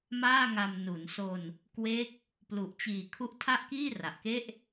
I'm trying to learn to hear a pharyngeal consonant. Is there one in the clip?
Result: no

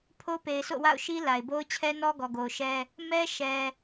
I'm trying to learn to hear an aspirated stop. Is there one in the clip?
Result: yes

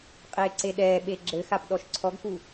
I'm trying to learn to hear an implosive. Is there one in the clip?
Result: yes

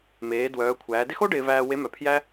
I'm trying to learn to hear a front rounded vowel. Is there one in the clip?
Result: yes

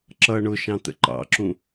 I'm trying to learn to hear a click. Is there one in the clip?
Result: yes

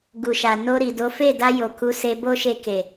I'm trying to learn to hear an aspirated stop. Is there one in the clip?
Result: no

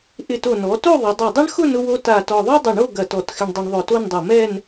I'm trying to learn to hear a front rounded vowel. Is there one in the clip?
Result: no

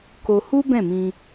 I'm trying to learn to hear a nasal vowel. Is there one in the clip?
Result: yes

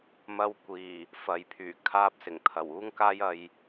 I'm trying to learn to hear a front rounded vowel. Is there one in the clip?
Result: yes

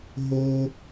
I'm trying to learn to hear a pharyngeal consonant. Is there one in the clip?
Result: no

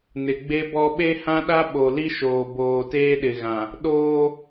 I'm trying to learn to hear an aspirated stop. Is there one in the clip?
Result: no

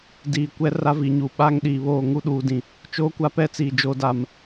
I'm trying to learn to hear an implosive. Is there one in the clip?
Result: yes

